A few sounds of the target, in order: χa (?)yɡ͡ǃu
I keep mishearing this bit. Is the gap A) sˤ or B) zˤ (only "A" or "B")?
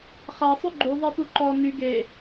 A